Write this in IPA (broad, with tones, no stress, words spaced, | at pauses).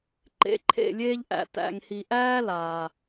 ǃḛ˨˦ǃʰḛ˦˨lʲeː˦ʎʔæ̰˨ tæ̰˨ŋhi˨ʔæː˦ laː˨